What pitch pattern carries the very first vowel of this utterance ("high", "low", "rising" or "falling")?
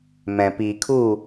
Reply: low